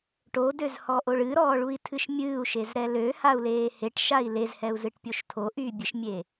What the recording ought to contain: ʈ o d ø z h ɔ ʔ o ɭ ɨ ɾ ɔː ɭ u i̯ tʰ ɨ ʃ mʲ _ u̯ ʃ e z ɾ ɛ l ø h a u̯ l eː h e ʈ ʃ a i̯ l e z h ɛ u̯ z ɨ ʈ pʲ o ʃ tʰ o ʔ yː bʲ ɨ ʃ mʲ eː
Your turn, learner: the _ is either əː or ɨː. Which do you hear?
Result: ɨː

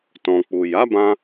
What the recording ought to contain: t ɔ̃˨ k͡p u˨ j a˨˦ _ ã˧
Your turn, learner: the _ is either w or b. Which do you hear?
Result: b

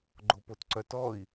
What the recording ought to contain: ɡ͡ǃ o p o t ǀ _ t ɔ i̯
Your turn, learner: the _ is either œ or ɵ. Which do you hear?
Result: œ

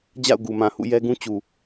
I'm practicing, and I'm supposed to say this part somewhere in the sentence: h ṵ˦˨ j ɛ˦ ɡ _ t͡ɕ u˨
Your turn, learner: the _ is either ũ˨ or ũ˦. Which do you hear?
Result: ũ˦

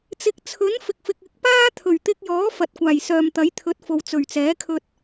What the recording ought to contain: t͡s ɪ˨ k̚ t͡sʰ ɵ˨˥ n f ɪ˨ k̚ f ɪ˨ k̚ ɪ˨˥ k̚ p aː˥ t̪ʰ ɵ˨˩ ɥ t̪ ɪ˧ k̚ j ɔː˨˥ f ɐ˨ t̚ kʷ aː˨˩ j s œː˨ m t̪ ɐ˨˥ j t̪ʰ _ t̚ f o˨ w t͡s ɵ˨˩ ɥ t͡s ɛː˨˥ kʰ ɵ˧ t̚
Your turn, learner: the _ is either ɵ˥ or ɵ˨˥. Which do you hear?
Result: ɵ˨˥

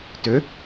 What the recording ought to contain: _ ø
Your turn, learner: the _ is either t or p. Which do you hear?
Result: t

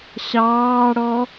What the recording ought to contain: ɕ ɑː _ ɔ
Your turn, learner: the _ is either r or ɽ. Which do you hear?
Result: ɽ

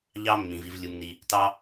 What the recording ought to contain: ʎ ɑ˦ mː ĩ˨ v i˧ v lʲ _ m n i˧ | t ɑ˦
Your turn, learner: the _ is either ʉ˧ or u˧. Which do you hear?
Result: u˧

